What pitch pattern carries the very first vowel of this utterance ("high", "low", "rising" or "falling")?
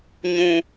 low